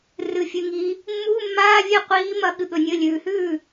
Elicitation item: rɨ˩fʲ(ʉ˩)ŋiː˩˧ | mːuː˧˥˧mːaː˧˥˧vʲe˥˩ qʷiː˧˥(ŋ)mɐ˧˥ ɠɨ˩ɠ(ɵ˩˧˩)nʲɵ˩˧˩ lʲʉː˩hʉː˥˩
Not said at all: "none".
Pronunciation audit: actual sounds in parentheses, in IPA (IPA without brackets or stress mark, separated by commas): ʉ˩, none, ɵ˩